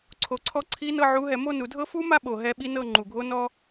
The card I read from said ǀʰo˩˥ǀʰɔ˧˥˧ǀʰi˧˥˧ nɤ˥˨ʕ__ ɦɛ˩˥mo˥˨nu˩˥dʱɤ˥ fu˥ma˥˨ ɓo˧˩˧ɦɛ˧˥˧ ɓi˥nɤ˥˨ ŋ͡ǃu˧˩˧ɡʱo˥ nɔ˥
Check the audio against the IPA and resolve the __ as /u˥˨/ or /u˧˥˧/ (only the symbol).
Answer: u˧˥˧